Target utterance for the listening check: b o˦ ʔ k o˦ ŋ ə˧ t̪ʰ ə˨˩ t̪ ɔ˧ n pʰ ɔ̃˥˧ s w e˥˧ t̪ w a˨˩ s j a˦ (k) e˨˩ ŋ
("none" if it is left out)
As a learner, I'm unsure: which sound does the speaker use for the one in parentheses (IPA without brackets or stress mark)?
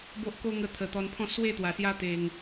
t̪